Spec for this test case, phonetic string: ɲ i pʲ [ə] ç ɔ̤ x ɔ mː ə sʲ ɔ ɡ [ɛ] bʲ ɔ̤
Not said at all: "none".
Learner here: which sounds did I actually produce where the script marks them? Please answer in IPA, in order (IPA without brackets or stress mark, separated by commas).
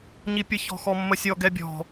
ə, ɛ